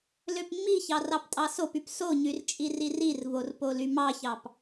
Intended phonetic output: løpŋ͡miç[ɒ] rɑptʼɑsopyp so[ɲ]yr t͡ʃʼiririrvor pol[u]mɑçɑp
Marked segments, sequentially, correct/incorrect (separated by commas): incorrect, correct, incorrect